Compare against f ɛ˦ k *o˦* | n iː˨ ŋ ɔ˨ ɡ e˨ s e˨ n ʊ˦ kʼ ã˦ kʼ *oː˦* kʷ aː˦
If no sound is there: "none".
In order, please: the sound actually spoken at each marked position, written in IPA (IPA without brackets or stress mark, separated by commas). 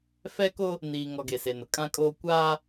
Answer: o˦, oː˦